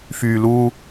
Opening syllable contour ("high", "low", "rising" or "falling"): low